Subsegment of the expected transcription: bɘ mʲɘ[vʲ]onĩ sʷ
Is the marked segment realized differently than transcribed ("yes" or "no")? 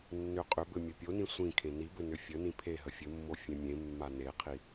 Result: yes